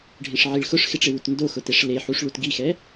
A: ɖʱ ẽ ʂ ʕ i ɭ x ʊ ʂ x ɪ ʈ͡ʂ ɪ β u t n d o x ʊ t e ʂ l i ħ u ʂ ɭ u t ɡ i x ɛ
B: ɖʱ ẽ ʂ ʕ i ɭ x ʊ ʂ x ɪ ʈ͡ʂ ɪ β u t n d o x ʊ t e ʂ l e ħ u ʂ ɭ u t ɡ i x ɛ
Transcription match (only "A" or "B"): B